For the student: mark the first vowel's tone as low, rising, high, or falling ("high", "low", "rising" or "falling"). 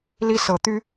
high